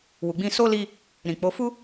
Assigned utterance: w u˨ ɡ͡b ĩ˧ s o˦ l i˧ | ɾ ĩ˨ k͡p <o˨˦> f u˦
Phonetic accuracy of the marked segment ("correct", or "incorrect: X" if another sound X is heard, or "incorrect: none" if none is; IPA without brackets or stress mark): correct